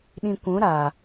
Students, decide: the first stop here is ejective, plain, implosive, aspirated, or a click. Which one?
implosive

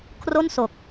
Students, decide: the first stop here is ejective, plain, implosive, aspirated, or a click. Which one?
aspirated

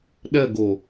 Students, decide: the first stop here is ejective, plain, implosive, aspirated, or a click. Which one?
implosive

